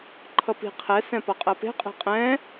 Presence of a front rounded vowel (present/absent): absent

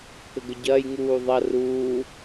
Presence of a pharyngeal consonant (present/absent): absent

